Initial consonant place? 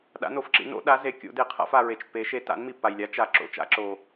alveolar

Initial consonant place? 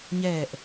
palatal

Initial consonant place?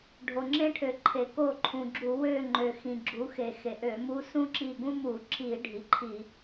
retroflex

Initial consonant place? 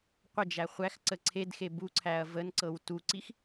uvular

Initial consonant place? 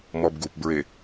labial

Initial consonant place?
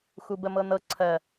velar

